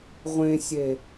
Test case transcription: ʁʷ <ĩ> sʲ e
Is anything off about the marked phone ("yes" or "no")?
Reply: yes